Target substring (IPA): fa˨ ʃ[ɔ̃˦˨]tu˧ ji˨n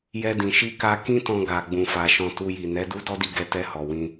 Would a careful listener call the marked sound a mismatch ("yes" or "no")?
yes